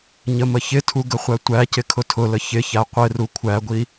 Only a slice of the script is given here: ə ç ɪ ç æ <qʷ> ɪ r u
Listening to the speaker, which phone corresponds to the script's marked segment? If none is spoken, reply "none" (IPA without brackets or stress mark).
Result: qʷ